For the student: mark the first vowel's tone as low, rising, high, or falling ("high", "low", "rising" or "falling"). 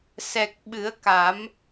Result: low